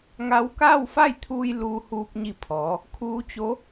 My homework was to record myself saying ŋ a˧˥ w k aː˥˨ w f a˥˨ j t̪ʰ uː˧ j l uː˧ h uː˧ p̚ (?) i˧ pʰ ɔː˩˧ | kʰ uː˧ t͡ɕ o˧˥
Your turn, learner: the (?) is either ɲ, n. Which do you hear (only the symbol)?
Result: ɲ